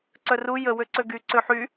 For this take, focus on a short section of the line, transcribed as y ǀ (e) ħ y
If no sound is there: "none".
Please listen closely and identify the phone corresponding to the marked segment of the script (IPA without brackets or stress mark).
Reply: ø